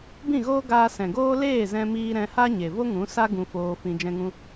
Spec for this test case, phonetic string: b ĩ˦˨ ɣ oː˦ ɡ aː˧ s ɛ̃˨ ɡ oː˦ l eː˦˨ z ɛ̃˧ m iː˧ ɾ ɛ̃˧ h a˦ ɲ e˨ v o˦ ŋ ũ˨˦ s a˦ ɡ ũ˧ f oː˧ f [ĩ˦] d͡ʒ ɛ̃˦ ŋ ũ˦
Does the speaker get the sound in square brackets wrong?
yes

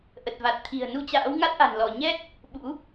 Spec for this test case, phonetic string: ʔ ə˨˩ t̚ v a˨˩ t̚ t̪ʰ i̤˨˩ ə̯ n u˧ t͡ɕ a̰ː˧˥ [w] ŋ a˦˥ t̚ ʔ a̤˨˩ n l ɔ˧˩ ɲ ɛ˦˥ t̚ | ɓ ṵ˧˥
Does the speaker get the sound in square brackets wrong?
no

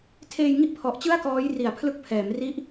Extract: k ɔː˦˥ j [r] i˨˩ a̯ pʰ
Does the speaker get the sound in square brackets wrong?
no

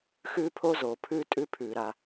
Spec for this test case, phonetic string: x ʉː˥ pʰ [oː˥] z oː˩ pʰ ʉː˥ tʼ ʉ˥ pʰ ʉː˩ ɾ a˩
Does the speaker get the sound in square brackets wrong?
yes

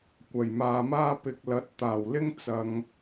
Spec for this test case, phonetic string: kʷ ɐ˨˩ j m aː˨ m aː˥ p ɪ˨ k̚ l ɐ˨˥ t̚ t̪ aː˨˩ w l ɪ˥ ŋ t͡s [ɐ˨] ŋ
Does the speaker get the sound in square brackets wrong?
no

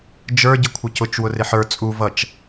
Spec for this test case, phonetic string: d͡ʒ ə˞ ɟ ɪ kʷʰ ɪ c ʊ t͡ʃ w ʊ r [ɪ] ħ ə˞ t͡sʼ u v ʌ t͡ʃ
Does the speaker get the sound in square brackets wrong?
no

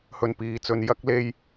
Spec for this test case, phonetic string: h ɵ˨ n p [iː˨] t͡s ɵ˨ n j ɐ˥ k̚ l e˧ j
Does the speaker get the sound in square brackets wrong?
no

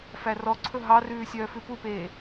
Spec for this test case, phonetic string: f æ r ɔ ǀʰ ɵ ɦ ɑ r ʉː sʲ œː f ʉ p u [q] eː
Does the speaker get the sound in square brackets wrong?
yes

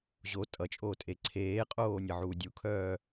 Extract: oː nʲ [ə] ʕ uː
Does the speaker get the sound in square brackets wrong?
yes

